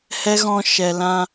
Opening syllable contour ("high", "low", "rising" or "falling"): high